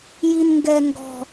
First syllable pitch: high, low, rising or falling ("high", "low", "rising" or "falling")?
high